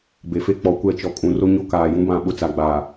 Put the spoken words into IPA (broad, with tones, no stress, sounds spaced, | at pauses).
b e˨ f e˦ k͡p ɔ˨ kʷ ɛ˦˨ t͡ʃ ɔ˨ kʼ ũ˨ r o˦ ɲ o˦ k aː˨ j ũ˦ b ã˦˨ ɓ ʊ˦ t͡s a˨ ɡ͡b aː˨